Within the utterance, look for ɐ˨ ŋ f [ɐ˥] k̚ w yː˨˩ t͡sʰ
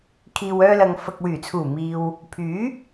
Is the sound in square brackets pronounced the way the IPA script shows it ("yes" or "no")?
no